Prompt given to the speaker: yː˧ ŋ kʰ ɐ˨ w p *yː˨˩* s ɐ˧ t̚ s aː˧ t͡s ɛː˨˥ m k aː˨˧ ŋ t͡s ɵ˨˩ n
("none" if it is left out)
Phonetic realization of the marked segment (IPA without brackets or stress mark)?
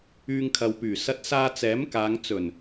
yː˨˩